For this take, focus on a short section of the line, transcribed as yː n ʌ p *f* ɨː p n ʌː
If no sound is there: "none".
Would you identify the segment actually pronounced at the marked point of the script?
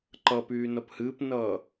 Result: h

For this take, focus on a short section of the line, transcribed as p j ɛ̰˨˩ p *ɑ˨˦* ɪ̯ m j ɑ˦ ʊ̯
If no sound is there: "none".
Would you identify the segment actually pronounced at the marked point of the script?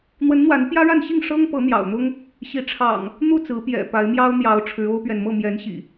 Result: a˨˦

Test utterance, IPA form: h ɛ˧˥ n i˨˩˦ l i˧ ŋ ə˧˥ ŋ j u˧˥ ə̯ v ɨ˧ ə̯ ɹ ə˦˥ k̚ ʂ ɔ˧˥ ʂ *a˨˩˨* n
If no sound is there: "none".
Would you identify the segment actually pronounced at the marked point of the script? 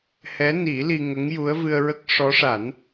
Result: a˨˩˦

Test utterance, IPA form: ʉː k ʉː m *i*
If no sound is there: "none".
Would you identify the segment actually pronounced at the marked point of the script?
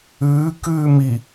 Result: i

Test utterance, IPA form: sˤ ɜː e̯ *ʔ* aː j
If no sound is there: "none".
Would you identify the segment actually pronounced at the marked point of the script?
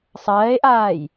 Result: ʔ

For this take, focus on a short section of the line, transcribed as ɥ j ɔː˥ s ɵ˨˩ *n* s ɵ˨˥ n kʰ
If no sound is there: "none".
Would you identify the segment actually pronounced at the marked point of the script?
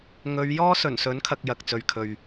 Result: n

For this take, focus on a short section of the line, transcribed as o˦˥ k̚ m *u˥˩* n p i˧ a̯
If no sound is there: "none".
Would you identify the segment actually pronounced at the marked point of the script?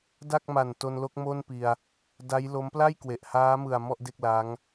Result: o˥˩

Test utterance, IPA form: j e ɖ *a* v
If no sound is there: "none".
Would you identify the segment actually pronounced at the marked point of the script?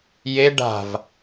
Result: a̤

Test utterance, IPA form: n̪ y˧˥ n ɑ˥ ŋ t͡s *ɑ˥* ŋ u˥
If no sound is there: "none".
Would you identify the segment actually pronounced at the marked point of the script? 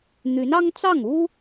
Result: ɑ˥˩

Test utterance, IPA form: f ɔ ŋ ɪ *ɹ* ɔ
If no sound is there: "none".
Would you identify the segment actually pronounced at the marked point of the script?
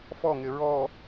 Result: ɹ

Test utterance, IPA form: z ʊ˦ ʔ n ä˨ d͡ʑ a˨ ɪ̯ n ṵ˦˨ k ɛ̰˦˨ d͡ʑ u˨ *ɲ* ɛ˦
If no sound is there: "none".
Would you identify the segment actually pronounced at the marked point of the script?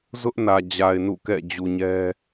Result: ɲ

